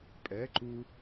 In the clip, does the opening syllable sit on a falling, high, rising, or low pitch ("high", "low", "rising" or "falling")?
rising